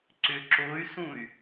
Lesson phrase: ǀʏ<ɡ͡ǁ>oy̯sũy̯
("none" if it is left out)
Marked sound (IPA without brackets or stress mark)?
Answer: ǁ